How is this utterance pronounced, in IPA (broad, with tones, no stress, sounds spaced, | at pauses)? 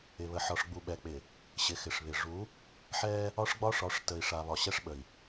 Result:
ɪ˨ β ə˨ ħ ɒ˨ ʂ ɡ͡b u˨ ɓ ɛ˨ k͡p ɪ˨ | ɕ ɪ˨ x ɪ˨ ʂ β ɪ˨ ʐ u˨˦ | ħ ɛ˦ | ɒ˦ ʂ ɡ͡b ɒ˦ ʂ ɒ˨˦ ʂ t ə˨ i̯ ʂ a˨ β ɒ˨ ɕ ɛ˦ ʂ ɓ ə˨ i̯